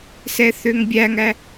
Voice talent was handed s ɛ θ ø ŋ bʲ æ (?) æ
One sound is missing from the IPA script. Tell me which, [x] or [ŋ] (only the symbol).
ŋ